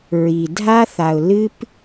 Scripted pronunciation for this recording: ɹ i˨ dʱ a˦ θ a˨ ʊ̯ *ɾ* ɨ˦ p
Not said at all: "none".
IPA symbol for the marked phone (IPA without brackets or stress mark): l